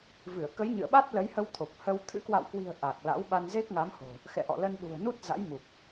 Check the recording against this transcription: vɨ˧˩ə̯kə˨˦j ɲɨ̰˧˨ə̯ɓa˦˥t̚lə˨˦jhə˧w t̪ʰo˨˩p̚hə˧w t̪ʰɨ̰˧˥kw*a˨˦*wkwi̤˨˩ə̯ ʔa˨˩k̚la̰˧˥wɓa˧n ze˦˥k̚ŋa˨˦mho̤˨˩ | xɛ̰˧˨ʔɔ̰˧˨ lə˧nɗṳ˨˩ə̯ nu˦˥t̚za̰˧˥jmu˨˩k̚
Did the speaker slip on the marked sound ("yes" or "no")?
yes